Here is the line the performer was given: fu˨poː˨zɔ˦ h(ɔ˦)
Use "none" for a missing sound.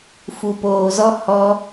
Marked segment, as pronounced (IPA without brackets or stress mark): ɔ˦